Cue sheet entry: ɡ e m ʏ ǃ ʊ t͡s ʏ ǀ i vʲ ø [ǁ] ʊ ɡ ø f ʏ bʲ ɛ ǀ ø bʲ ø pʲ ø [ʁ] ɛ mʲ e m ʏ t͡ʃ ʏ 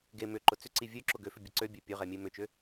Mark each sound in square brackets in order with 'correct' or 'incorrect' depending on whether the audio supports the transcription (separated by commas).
correct, correct